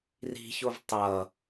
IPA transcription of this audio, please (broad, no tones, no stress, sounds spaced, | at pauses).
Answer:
r i̤ ç o v tˤ ʌ